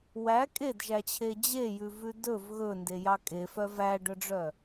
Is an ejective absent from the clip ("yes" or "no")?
no